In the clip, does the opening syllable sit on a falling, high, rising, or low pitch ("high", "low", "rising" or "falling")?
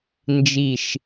falling